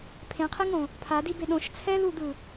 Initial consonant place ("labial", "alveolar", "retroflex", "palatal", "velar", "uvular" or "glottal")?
labial